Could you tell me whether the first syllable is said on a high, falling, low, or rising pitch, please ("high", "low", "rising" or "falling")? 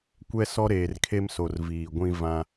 high